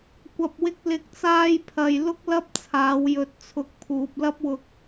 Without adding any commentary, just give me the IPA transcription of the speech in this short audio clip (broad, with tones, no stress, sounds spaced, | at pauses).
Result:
kʷ ɐ˨ p̚ w ɪ˧ k̚ l ɪ˨˥ k̚ t͡s aː˧ j pʰ ɐ˨ j l ʊ˥ k̚ l ɐ˥ p̚ t͡sʰ aː˨˧ w j ɵ˨ t̚ t͡sʰ ʊ˨˥ k̚ pʰ uː˨ p̚ l ɐ˥ p̚ w ʊ˧ k̚